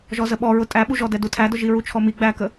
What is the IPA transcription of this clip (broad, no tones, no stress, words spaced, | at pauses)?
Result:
ʒɔzəɓɔɹʊ tʼæɓuʒɔdɛ dutʰædʊ ʒiɹut͡ʃʰɔmi ɡ͡bækə